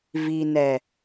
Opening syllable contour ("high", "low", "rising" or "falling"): low